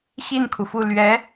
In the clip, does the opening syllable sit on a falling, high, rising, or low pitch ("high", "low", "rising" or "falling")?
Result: falling